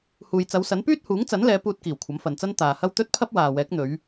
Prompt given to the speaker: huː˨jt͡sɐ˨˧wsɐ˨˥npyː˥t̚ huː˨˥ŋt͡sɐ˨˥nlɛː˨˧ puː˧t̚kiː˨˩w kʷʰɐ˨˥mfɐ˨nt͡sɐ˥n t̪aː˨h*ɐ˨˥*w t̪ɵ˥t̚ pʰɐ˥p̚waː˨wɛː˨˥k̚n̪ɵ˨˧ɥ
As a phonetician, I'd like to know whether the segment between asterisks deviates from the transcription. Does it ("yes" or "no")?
yes